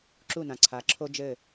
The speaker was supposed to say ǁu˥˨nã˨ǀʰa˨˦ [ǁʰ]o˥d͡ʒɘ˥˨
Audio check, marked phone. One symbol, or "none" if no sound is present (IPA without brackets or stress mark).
ǁʰ